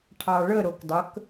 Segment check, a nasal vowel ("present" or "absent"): absent